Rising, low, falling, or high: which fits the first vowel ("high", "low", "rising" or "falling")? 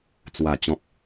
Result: low